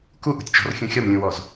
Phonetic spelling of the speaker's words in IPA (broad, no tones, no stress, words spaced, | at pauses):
kuʔṳtʲt͡ʃɔ̤rxʲũ xʲɒmlʲũwɔz